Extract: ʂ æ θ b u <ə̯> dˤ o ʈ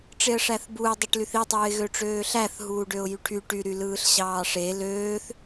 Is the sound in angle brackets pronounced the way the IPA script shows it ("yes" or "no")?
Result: no